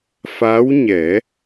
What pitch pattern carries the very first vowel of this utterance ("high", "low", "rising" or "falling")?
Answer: rising